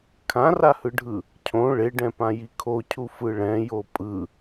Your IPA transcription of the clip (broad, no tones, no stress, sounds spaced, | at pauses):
kʰ ã r a h ɯ ɖʱ ɯ | cʰ õ ɭ e ɖ ɛ̃ p ã j i kʰ o cʰ u f ɯ ɭ ɛ̃ j o pʼ ɯ